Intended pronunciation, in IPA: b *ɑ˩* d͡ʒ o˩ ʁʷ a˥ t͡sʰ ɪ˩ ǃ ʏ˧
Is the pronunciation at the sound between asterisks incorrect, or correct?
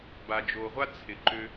incorrect